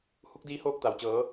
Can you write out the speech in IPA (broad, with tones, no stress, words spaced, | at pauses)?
hu˧˥k̚diː˧˥hoː˥˨k̚t̪a˩w t͡ɕɤː˩˧